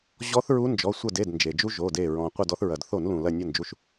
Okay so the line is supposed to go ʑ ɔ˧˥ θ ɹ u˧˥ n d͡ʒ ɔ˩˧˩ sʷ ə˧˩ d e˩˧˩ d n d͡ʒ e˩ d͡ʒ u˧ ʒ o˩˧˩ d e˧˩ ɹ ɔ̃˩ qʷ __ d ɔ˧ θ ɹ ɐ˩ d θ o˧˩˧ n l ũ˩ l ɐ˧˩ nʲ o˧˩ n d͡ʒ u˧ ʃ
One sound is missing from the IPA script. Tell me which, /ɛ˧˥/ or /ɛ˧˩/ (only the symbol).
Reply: ɛ˧˩